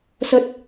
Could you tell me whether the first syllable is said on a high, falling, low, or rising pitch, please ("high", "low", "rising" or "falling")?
low